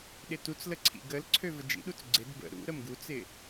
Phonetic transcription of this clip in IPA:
ɗɪtut͡slə ǀʰḭɡəlǀʰø vəd͡ʒḭɗut͡s ɡ͡ǀɪd bə̰ ɾṵ ɾəmɡut͡sɪ

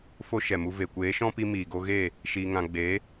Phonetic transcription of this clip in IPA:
fo˦ʃɛ˨mu˧ ve˨kʷeː˨˦ʃɔ̃˦pi˧ miː˨ɡo˧ɣe˦˨ | ʃiː˧ŋã˧ ɡ͡be˨˦

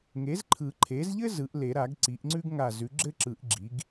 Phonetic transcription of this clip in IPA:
ŋe˩˥zǃʰɯ˨˩˦ǃʰe˩˥zʎɘ˥ zɯ˩˥ʔle˨˩˦ɾa˨˩˦ɡ ǀi˩˥ʔŋ͡ǀʉ˥ɡ ŋa˧˩zʉ˩˥ ɡ͡ǁɘ˥ǁɯ˨˩˦ʔ ɡ͡ǁi˩˥ɡ

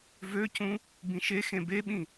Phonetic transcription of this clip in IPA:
vøcũ | bĩʃexẽ beɓĩ

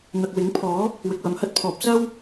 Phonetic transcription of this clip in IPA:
n̪ɐ˨k̚wɪ˨˥ŋ pʰɔː˨˥ | wɪ˨k̚wɐ˨mhɐ˥t̚pʰɔː˨p̚ sɐ˥w

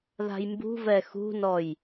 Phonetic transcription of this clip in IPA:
ða̤jmbṳvɛ xṳnɔj

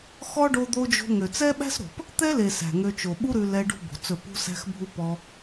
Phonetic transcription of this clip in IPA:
xɔ˦ ɖo˧d̪o˧d͡ʒo̤˧ ŋø˨t͡sɛ˦ɓæ̤˦sɾo̤˨p | t̪ɛ˦le˨ sæ̤˨ŋø˧t͡ʃo˨ ɓu˦ɾʉ˧lɛ˧ ɖṳ˦bo̤˨t͡sɵ˦˨ pṳ˧sæ̤˧xbʱu˧ pɔ˧

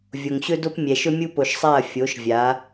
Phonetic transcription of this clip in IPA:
vʲo˨ŋɕɵ˦do˦p mʲɛ˨ʃɵ˦mʲu˦ po˨ʃsˤa˦˨ɐ̯ fʲo˨˦ʃvʲa˨˦

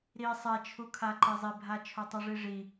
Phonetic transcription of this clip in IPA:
ɾi sˤɛt͡ʃʰukʰa ǃezˤibʱa t͡ʃʰotˤuʐiʐi

